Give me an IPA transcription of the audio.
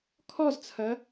kʰ ɔ z t͡sʰ ɐ

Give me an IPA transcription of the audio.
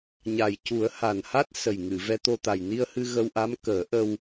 ɲ a˨˩ j c u˨˩˦ ə̯ h a˨˩ n h a˦˥ t̚ s ə˨˩ j ŋ ɨ˨˩˨ v ɛ˧ t̪ o˧ t̪ a˨˩ j n i˧ ə̯ h ɨ˧ ɣ ə˧ w ʔ a˧˥ m k əː˨˩˦ ʔ ə˧ w

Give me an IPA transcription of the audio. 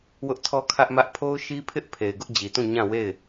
w ʊ˦ ʔ tʰ ɔ˦ kʰ ä˦ ʔ m ä˦ ʔ pʰ o˦ ʊ̯ ʃ i˦ pʰ ɪ˦ ʔ pʰ e˨ ɪ̯ ɡ ʊ˦ ʔ d͡ʑ i˨ t ũ˦˨ ɲ ã˦˨ w e˦˨ ɪ̯

